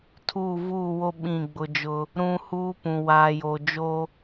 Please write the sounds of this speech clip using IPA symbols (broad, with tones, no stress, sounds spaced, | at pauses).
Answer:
tʰ uː˦˨ v uː˦˨ w o˦ ɓ ĩ˦˨ ɡ͡b ʊ˦ d͡ʒ ʊ˦ | ɾ ũ˦ h uː˦ p ũ˨ w aː˨ j o˨ d͡ʒ o˦